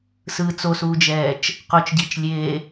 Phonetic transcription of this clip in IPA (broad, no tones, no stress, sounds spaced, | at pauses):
s ɯ t͡s o s uː d͡ʒ ɛː t͡ʃ | q o t͡ʃ ɟ i t͡ʃ lʲ eː